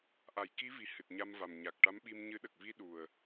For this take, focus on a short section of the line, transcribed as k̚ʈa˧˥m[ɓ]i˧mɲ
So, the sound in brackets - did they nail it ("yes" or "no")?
yes